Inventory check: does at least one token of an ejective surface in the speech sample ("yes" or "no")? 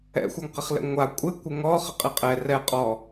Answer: yes